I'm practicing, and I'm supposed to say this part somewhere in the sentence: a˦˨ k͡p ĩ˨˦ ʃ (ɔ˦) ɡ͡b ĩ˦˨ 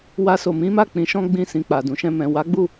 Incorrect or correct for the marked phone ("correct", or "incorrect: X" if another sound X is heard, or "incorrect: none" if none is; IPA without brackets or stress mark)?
incorrect: ɔ̃˦